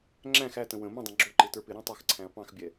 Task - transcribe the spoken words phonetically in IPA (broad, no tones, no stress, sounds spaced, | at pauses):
ŋ͡ǁ æ̃ x æ t ə̃ w ə̃ m ə̃ dˤ ə̃ ɡ͡ǁ ʊ ǃ ɪ t ə˞ p ɪ ɾ æ̃ tˤ ɛ x ǀʰ æ̃ ɐ̯ p ɑ̃ x bʲ ɛ